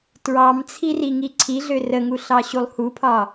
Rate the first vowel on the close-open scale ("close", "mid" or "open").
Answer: open